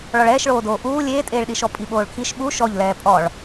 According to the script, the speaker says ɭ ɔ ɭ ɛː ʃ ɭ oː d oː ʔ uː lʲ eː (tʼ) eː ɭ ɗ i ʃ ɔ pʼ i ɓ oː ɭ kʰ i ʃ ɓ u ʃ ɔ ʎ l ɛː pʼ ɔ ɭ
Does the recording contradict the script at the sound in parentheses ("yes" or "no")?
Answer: no